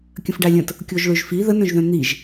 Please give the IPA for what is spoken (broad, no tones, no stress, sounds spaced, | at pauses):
kʲ ə̃ f ɖ a lʲ ə̃ t | kʲ o ʒ ɭ ø ʒ f i ð ə n œ̃ ʒ ð œ̃ n̪ i ʒ